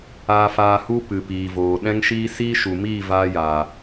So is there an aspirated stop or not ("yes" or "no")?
no